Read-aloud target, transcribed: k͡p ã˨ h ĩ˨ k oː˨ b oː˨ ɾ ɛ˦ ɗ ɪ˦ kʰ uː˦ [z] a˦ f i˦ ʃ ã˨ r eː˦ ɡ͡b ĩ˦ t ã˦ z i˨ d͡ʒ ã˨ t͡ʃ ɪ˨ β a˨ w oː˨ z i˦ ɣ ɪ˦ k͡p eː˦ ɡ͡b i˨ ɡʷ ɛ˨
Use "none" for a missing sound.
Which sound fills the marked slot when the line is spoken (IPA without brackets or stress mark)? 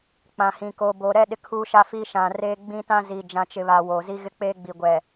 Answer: ʃ